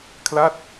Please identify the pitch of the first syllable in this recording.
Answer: falling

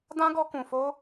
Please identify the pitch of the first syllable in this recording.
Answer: high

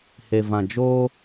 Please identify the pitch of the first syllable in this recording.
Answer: low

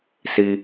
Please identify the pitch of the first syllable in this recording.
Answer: high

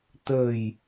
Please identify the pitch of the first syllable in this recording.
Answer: low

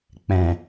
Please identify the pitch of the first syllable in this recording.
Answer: low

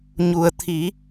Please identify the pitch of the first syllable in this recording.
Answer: low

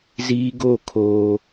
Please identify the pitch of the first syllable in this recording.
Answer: high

